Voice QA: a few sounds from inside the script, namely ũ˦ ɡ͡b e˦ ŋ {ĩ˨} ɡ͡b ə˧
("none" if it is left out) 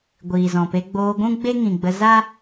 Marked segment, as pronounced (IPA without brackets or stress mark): ĩ˨